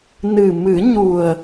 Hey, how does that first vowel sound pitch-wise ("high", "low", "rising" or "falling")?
low